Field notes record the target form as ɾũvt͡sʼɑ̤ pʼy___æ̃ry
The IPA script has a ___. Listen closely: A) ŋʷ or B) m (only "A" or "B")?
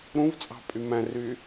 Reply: B